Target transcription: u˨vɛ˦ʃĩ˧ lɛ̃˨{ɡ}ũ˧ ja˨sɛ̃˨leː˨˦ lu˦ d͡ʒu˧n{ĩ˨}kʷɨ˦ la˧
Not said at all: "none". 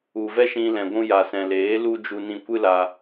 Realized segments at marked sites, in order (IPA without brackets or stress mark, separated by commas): ɡʷ, ĩ˧